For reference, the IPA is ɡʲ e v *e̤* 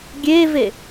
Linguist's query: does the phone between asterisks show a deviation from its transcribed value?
yes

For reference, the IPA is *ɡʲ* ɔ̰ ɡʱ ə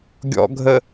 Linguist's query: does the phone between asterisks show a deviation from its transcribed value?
no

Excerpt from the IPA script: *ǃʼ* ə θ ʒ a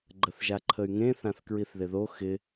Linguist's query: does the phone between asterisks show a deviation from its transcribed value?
yes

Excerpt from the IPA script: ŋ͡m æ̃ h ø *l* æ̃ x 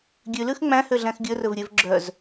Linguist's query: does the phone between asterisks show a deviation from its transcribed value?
yes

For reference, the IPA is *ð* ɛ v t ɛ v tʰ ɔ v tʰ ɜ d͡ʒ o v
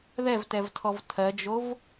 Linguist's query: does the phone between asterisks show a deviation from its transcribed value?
no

